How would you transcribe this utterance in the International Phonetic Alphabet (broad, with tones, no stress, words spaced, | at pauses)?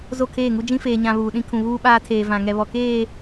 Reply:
zo˦˨kʰeː˦˨ŋu˦ d͡ʒĩ˦feː˨ɲã˨ βuː˨ɗĩ˦ kʰũ˨βuː˦ɓaː˦tʰeː˨ vã˨ ŋɛ˨ βɔ˨keː˦˨